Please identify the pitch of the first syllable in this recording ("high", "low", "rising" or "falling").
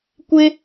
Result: high